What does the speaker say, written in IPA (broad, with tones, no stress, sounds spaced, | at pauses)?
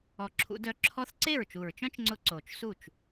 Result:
ɔ˨˩ ǁʰ ṵ˩˧ d œ˩˥ ǁʰ ɔ˧˥ θ ǀ e˥˩ ɹ t͡ʃ u˨˩ ɹ t͡ʃ œ̃˥ t͡ʃ ŋ͡ǀ ʊ˧˥ ǀ o˨˩ t͡ʃ s u˥˩ t͡ʃ